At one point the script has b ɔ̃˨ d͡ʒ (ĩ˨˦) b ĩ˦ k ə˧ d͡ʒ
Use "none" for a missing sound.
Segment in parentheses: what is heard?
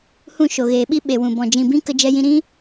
ĩ˨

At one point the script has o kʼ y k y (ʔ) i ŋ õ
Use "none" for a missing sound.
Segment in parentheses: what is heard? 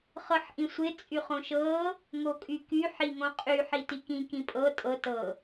ħ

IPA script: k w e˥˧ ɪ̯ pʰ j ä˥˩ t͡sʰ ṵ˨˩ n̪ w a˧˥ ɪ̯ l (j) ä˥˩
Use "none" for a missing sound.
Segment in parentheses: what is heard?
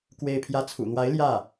j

